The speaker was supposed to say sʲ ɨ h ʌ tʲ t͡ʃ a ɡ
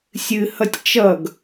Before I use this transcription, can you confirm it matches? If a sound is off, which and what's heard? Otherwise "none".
a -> ʌ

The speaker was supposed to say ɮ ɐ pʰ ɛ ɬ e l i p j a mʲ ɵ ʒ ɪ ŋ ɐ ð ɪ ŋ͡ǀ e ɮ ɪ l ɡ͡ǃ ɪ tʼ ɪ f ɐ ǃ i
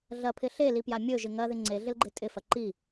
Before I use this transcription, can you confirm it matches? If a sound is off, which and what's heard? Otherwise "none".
ɛ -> ɪ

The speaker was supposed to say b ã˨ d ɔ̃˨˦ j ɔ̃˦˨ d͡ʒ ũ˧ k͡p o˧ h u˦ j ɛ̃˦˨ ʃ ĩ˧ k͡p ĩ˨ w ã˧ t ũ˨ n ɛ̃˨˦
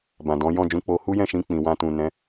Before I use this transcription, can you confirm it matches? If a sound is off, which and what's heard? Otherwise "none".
none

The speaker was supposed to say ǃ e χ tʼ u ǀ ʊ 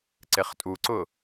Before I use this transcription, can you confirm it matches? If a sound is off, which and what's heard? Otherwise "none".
ǃ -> ǀ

